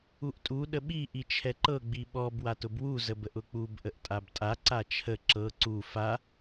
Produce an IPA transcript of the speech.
u ʔ tʼ u ɗ ə ɓ i ʔ i t͡ʃʰ ɛ ǃ ɤ ɡ͡b i ɓ ɔ b w a t ʊ b w u z ə b ə ʔ ʊ k͡p u b ʔ ə ʔ tʼ a b tʼ a ǀ a t͡ʃʰ ə ǁ ɤ ǀ u f a

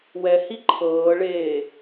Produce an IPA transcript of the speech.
w ɛ h i ǃʰ ɤː ɭ eː

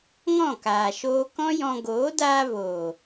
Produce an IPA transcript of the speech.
ŋ ɔ̃˦˨ k aː˨ ʃ oː˧ k ɔ̃˦ j ɔ̃˧ ɡ oː˨˦ d aː˧ v oː˨

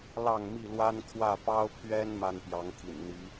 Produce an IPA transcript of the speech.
l ɑ˥˨ ŋ m i˥˨ l w a˦ n kʰ w ä˥˨ p ɑ˦ ʊ̯ pʰ ɥ ɛ˦ n m a˦ n p j ɑ˨˦ ŋ t̪ʰ ḭ˨˩ n n̪ i˨˦

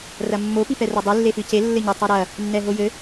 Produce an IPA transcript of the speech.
r ɐ mː o p i p ɛ r ɐ dˤ ɨ lː e f ɨ c e lː ɘ ɲ ɐ tˤ i ɾ ɐ | nː ɛ ɦ o j ɘ

